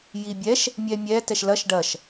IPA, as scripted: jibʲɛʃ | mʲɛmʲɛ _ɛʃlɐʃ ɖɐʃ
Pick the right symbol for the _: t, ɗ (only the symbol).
t